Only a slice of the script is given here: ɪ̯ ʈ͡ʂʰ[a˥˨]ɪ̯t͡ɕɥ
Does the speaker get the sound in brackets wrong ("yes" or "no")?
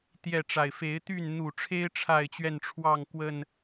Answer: no